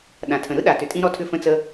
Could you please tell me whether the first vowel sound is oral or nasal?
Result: nasal